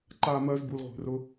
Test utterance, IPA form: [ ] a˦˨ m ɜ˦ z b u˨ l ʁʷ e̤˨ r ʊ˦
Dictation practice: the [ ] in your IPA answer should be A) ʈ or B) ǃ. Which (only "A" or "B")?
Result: B